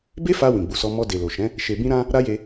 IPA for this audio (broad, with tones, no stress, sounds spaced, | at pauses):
b e˦ f a˧ w ĩ˨ ɡ͡b u˨ s ɔ˧ m ɔ˧ d e˨ l o˨ ʃ ɛ̃˨˦ | ʃ e˧ b ĩ˦ ɾ ã˦ | ɾ a˦ j e˧